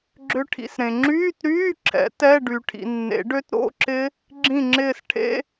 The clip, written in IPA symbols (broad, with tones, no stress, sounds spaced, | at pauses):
ɡ͡ǁ ʏ˦˥ ʈʰ ḭ˨˦ s ɾ ẽ˨ ŋ͡ǁ yː˧˥˧ t ɾ yː˧˥˧ ǁʰ ɛ̰˨˩˦ t ɛ˧˥˧ ɖ y˨ ʈʰ ḭ˨ nː ḛ˨˩˦ ɖ ø˦˥ t ɾ o̰˧˥˧ ǁ ɪ˦˥ | ɡ͡ǁ ĩ˦˨ ŋ͡ǁ ɪː˦˨ s ʈʰ ḛ˧˥˧